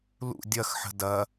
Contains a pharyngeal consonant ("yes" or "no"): yes